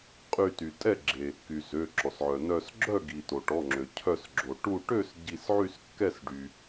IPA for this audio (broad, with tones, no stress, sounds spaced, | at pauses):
qʼ y˧˩ t y˩ tʼ ɛ˥˨ ɡ͡ǁ e˩ | k y˩ z ø˩˧˩ ǁ ɔ˩ s ʕ œ˩ n œ˧˩ s ɡ͡ǁ œ˥˨ ɡ i˩ t o˩ ʈ ɔ˩˧˩ ŋ͡ǁ ø˩ cʰ œ˧˩ s ɡ͡ǁ o˩ ʈ u˧˩ ʈ ø˥˨ s ɟ i˧˩ s ʕ y˥˨ s kː ɛ˥˨ s ɖ y˩